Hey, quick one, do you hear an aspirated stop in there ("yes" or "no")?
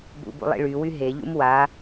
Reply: no